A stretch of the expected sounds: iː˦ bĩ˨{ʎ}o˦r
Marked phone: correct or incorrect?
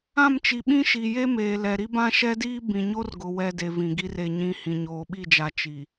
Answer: incorrect